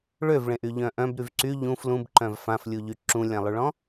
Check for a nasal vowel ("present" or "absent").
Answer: present